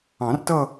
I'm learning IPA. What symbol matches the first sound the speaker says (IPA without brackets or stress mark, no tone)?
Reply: ɑ̃